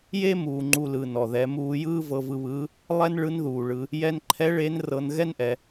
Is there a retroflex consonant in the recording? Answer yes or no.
yes